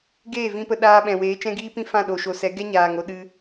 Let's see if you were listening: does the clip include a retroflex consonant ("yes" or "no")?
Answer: no